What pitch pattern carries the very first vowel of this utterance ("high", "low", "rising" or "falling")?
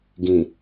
low